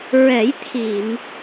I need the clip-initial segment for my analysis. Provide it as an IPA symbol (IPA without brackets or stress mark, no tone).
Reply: ɹ